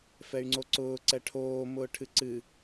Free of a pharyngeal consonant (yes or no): yes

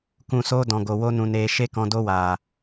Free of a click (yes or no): yes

